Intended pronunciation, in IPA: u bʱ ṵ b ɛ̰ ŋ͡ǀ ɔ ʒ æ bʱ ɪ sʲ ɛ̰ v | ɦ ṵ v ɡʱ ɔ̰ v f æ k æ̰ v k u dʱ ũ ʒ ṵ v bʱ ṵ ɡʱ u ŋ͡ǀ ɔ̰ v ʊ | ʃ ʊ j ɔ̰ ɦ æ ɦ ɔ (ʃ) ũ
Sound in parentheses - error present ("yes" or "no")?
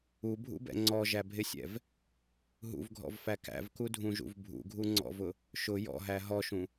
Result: no